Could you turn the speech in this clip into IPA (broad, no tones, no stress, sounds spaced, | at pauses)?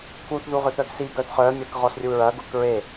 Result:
k u θ ð u ʁ ʏ θ œ ɡ s i ɡ œ θ χ œː mʲ ɐː k ʁ ɔ s rʲ u ɹ ɐ ɡ ʊː k ɹ e